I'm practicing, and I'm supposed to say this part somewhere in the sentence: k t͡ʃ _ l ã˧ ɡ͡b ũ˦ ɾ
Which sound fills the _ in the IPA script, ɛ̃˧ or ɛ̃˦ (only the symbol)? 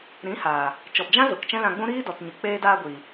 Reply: ɛ̃˦